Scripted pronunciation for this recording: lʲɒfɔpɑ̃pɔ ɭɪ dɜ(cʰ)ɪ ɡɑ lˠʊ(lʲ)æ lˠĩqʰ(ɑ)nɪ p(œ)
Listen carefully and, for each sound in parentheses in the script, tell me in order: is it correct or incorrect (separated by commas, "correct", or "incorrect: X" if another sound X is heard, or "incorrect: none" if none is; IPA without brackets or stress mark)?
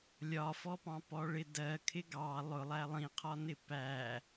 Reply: incorrect: kʰ, incorrect: lˠ, incorrect: ɒ, incorrect: æ